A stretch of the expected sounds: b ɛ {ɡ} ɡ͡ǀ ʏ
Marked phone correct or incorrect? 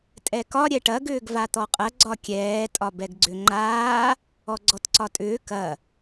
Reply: correct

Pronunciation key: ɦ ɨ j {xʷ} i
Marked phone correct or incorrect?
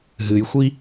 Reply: correct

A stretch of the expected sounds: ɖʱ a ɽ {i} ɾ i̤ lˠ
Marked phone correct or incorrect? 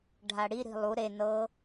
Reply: correct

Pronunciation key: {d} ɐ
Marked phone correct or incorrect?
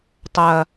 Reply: incorrect: tˤ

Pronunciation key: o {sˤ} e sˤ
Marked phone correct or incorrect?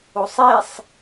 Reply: correct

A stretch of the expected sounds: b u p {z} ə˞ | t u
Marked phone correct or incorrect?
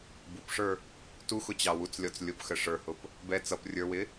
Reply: incorrect: ʂ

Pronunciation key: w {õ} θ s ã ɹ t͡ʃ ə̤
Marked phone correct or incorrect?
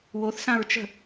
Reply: incorrect: o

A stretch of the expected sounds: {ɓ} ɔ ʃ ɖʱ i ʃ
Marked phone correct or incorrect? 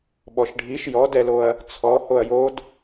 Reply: correct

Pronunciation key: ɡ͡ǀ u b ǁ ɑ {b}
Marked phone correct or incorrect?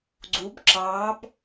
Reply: correct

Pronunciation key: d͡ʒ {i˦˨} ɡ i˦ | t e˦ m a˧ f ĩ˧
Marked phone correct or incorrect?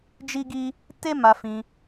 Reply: incorrect: i˦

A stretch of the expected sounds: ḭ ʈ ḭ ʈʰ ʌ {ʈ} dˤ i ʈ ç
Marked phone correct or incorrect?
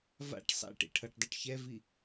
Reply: correct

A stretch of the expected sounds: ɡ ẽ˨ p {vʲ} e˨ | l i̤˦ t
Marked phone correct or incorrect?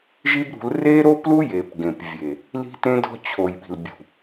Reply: correct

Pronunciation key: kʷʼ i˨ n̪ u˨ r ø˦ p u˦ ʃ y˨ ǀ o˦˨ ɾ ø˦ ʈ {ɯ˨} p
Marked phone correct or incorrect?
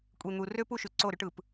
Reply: correct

